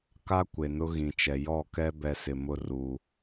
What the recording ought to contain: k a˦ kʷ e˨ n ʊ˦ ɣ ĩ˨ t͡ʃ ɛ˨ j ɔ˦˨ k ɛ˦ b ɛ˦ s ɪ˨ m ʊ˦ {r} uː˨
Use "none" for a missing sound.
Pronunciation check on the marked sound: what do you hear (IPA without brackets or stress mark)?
r